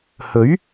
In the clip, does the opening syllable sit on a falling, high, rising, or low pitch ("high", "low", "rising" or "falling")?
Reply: rising